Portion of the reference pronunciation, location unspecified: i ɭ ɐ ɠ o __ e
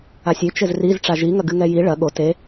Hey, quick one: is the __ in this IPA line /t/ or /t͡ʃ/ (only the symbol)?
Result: t